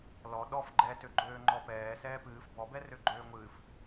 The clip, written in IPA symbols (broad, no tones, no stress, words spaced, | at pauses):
lɔ ɗɔf ɡ͡ǃɛtøɡ͡ǃøː ŋ͡ǃɔpɛː sɛːpɨːf bɔbɛrø ɡ͡ǃøːŋʷɨːf